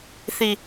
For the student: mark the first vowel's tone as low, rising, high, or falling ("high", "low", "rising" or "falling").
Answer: low